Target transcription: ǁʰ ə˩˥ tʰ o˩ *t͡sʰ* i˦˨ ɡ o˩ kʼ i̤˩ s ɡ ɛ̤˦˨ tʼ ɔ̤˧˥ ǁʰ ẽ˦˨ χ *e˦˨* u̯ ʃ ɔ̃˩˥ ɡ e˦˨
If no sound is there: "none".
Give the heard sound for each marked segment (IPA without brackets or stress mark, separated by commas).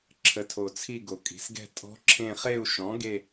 t͡sʰ, e˦˨